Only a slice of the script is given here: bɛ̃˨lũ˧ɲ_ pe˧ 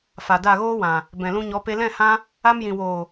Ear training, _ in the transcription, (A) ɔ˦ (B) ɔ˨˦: B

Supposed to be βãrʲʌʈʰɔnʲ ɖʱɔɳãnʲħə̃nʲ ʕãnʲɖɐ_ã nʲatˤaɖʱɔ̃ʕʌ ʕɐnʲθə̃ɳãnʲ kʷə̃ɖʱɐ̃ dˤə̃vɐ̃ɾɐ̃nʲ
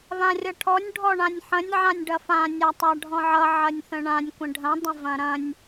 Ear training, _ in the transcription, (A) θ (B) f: B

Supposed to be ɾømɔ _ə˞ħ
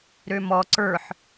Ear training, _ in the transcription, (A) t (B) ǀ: B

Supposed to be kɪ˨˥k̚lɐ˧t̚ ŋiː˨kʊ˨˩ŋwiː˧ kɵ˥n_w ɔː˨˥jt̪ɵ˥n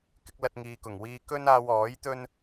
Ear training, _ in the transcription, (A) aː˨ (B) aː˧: B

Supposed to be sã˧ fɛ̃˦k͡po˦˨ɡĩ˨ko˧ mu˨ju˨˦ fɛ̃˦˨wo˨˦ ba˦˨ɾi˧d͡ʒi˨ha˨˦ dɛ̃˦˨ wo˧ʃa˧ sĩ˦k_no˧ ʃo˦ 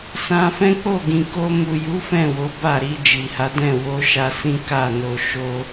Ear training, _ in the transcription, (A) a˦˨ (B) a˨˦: A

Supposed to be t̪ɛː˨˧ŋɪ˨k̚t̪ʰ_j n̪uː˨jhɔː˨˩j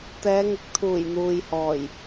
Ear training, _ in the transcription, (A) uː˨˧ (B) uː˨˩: B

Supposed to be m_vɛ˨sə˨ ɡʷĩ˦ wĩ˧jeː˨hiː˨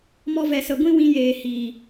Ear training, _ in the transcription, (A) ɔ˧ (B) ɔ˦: A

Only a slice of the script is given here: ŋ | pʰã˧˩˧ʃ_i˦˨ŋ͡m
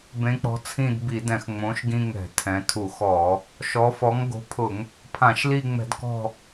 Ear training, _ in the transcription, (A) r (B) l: B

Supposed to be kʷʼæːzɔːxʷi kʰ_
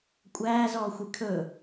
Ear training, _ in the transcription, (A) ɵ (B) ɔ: A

